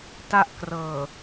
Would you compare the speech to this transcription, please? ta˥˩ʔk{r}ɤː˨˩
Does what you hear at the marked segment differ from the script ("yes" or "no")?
no